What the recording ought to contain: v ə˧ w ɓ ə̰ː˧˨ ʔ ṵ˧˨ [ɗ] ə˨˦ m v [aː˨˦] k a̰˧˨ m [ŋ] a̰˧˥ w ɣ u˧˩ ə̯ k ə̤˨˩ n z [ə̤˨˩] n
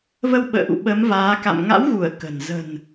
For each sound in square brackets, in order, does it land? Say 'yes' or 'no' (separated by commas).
no, yes, yes, yes